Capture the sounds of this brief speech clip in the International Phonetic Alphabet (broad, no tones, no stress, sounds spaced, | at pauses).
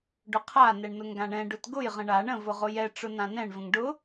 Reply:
ɖ ʊ qʰ a n ɛ ɳ n ʊ ŋ ɡ ã ɳ ɛ̃ ɖ ʊ t ɡ ʊ j ʁ ə̃ ɳ a ɳ ə̃ v ʊ ʁ ʊ j ɛ ʈ͡ʂ ʊ n ã n ɛ̃ ɳ v ə̃ ŋ ɖ ʊ